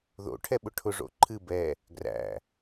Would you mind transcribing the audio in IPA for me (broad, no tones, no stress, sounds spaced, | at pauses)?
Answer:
ð o̰ ʈʰ ɛ ɓ ʊ ʈʰ ʊ ʐ o̰ ǃʰ ɨ b ɛ | ɡ r æ̰